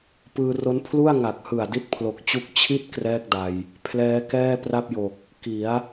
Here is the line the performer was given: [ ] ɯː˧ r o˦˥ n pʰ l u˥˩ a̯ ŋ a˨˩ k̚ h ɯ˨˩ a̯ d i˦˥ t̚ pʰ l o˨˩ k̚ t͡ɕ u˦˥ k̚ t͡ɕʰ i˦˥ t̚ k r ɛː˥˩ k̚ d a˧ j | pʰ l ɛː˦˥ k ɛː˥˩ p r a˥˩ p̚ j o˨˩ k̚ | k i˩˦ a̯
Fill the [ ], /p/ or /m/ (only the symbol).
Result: p